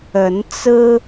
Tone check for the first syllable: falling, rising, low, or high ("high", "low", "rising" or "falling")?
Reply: rising